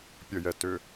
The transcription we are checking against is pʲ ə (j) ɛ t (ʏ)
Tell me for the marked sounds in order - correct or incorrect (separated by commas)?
correct, correct